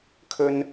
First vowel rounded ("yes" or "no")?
yes